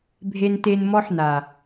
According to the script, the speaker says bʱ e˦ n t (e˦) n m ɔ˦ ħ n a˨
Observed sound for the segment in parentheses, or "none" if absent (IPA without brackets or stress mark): e˦